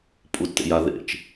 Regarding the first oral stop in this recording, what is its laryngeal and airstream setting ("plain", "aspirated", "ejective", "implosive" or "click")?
ejective